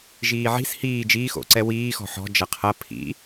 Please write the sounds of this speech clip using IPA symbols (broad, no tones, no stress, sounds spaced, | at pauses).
ʒ iː ʕ i̤ s h iː d͡ʒ iː x o̰ ǀ ɛ w iː x ɔ̤ ħ ɔ̤ d͡ʒ ɐ qʰ ɐ pʰ ḭ